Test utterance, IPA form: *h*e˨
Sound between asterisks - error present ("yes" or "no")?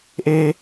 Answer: yes